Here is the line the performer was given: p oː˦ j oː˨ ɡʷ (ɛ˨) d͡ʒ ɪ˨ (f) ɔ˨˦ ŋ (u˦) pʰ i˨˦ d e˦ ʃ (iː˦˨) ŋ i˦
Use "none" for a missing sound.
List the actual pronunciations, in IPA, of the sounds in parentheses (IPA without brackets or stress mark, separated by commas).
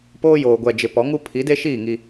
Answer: ɛ˨, p, u˦, iː˦˨